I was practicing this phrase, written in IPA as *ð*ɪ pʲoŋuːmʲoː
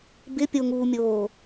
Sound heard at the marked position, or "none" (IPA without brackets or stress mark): b